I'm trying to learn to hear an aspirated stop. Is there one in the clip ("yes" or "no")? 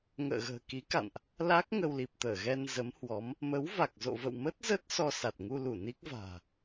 no